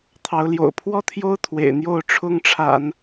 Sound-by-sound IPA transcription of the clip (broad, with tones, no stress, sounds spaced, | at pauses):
t̪ʰ ɑ˧˥ ʊ̯ l j o̰˨˩ ʊ̯ pʰ w ɔ˥˩ t̪ʰ j o˥ ʊ̯ t̪ʰ w ḛ˨˩ ɪ̯ n̪ j o˥˩ ʊ̯ ʈ͡ʂʰ ʊ˥ ŋ ʈ͡ʂʰ a̰˨˩˦ n